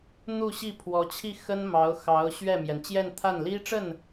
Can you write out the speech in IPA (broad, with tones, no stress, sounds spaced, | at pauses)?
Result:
n̪ u˥˧ ɕ i˥˩ pʰ w ɔ˧˥ t͡ɕʰ i˥˩ x ə˥ n m ɑ˧˥ ʊ̯ x ɑ˧˥ ʊ̯ ɕ ɥ ɛ˥˩ m j ɛ˩ n t͡ɕ j ɛ˥˧ n t̪ʰ a˥˩ n l i˥ ʈ͡ʂ ə˥˩ n